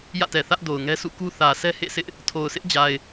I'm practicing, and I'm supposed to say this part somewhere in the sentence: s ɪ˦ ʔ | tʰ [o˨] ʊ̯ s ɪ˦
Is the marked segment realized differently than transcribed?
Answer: no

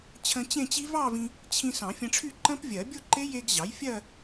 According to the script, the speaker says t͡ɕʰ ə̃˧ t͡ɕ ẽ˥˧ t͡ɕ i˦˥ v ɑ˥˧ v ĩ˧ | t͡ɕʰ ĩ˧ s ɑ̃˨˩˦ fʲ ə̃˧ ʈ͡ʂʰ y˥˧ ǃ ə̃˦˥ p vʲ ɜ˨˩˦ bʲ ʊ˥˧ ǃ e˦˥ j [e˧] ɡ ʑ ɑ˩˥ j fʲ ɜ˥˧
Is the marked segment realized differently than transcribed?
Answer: no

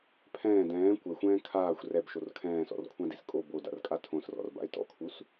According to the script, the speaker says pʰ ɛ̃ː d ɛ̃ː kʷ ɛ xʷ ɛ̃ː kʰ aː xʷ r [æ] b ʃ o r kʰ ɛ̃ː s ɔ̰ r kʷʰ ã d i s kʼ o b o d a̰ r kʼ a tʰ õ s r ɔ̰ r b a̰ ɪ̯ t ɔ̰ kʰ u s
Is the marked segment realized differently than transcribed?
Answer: yes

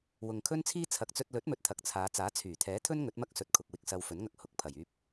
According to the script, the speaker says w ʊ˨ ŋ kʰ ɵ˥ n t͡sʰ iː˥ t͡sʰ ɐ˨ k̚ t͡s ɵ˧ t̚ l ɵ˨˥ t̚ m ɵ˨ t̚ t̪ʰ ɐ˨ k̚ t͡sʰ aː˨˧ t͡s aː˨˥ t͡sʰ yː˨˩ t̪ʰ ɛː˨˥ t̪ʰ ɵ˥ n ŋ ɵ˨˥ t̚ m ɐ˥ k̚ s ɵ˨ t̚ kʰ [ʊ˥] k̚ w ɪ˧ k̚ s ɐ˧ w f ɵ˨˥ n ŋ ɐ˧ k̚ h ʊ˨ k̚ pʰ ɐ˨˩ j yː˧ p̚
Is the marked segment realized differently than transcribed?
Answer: yes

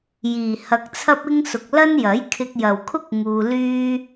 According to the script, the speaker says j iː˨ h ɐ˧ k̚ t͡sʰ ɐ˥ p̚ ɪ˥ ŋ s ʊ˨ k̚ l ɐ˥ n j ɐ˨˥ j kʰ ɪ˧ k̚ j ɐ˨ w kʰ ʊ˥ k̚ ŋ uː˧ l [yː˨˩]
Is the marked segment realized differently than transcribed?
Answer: yes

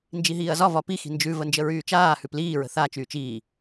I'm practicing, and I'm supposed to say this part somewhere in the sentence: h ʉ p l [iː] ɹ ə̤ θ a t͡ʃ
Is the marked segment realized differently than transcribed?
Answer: no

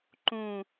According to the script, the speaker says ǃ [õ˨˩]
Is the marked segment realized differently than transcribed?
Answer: yes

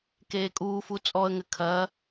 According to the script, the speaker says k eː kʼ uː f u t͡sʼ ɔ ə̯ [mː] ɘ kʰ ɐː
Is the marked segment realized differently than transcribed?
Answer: yes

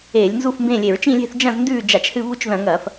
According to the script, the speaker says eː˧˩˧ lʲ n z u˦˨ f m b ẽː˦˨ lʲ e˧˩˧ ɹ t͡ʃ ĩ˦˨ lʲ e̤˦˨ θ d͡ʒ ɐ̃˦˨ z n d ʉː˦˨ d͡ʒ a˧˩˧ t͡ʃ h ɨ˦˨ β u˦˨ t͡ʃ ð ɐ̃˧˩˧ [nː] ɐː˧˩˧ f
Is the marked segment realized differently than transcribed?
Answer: yes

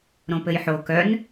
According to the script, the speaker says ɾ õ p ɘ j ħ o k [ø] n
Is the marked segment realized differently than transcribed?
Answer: yes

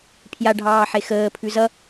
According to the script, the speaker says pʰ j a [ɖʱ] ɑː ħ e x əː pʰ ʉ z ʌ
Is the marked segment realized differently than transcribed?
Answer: no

